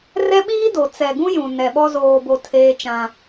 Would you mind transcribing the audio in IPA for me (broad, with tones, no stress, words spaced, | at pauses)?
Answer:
rɛ˦ɓiː˦do˨ t͡sɛ˨ɡũ˦jũ˨ nɛ˨ɓɔ˦ zoː˨bo˨ tʰeː˦t͡ʃã˦